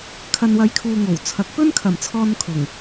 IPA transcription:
kʰ ɐ˨ n w ɐ˨˧ j kʰ uː˨ ŋ o˨˩ w t͡sʰ ɐ˨˥ k̚ p ɵ˥ n kʰ ɐ˨˩ m t͡sʰ ɔː˧ n kʰ ʊ˨˩ ŋ

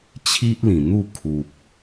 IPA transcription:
t͡ɕʰ i˦ ʔ l ĩ˨˩ n̪ u˥˧ kʰ u˨ p̚

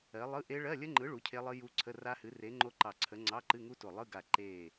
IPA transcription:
ɜ˨˥ lˠ ɯ˧˥˧ ʔ e˦˥ ɭ ɜ˧˥˧ lʲ ə˦˥ ŋ͡ǃ ɯ˨˥ ɭ u˨˥ cʰ e˦˥ lˠ ɨ˦˥ j u˦˥ ǀʰ ə˧˥˧ r a˦˥ h ɨ˨˥ r e˨˥ ŋ͡ǃ o˦˥ ǃ ɑ˧˩ ǀʰ ə˨˥ ŋ͡ǀ ɑ˧˥˧ ǃ ɨ˧˥˧ ŋ u˦˥ t o˧˩ lˠ ɯ˧˥˧ ɡ a˧˩ ǃ e˧˩

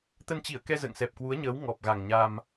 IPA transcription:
t̪ ə˧ n t͡ɕ i˧˩ ə̯ k ɛ˧ z ə̰ː˧˨ ŋ s ɛ˨˩ p̚ k w u˨˦ ə̯ ɲ əː˨˦ w ŋ ɔ˨˩ p̚ ɣ a˨˩ ŋ ɲ a˧ m

